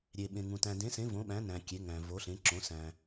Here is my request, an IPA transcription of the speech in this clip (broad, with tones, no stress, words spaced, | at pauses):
ɾʲe˨ɓẽ˨ŋũ˨ tæ̃˨dẽ˨˦sẽ˨˦ võ˨˦ɓæ̃˨˦næ̃˨ kʲe˨˦ŋæ̃˨ vo˨˦ɬẽ˨˦ǁõ˨˦ sæ̃˨